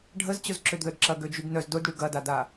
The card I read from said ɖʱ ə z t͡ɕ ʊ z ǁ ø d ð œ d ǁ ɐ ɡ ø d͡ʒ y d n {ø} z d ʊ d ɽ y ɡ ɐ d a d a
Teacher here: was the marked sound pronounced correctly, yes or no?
no